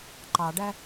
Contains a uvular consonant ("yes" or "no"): no